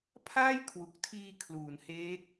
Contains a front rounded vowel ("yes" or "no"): no